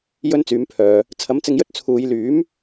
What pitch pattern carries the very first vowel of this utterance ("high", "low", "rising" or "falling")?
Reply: high